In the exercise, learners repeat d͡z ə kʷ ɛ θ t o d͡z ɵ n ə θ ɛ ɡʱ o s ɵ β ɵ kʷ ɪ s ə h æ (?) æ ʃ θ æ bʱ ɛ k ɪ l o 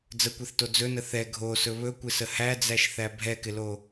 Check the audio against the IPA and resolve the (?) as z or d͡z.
d͡z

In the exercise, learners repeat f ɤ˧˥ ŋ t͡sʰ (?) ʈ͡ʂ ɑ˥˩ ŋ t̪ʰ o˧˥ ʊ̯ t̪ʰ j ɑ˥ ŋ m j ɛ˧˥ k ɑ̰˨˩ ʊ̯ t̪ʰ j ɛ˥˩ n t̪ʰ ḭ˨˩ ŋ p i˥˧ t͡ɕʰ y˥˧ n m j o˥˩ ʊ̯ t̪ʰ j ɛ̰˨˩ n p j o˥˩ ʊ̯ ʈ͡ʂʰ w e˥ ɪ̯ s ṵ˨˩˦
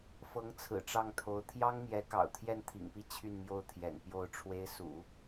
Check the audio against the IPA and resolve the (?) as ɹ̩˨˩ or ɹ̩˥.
ɹ̩˨˩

